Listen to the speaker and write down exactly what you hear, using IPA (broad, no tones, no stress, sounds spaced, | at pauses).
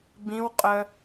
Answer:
b ĩ w qʼ œ